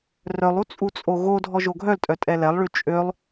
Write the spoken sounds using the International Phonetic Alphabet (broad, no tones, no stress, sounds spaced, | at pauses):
r œ lˠ u t͡sʼ u t͡sʼ o ɣ o dʱ ɔ ʒ o ɡʱ œ l tʼ œ tʼ ɛ l ɛ lˠ ɭ y t͡ʃʼ ø lˠ